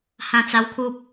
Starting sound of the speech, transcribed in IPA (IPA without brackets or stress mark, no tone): h